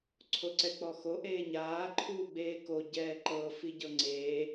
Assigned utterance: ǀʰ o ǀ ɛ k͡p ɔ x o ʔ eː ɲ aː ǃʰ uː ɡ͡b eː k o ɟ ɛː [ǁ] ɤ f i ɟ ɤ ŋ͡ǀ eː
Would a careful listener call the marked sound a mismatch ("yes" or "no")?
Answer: yes